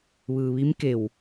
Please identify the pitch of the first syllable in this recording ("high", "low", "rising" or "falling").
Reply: low